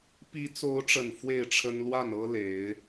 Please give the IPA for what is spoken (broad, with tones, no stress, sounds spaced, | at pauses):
p i˨˦ t͡s o˨˦ ʊ̯ ʈ͡ʂ ə˨˩ n f w e˥˨ ɪ̯ ʈ͡ʂʰ ə˦ n l w a˥˨ n ɤ˦ l e˨˦ ɪ̯